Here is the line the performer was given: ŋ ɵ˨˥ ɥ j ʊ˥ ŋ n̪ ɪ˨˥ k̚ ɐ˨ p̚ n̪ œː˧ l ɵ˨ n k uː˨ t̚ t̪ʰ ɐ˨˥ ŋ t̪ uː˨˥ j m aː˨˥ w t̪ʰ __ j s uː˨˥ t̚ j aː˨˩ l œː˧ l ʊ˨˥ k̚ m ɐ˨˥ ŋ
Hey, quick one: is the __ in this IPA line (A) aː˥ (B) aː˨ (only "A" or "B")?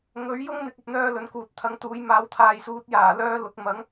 B